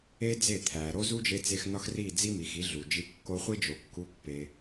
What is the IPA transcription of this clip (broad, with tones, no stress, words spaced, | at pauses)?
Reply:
e˦d͡ze˦˨t̪ʰæ˨ɾo˦ zu˦d͡ʒe˧t͡se˧x nɒ˦xri˦˨d͡zi˦mi˨x i˨˦ɮu˨d͡ʒi˧ kːo˧χʷi˦d͡ʒo˨˦ kːu˦ pːe˧